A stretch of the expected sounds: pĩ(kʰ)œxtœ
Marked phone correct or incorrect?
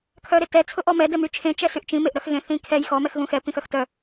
incorrect